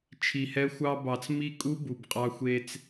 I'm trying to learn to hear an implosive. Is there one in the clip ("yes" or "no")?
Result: no